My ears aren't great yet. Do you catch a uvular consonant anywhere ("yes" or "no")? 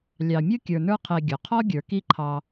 yes